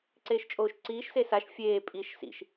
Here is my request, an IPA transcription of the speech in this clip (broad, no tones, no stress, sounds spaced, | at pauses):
ǀ eː ʃ t͡ʃʼ oː ʃ ǀ iː ʃ s e s a ʃ fʲ eː pʼ i ʃ s ḭ ʃ